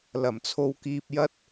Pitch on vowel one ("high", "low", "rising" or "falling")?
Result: low